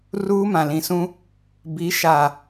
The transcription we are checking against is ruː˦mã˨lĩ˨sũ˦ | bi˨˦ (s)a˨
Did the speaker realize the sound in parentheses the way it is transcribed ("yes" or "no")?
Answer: no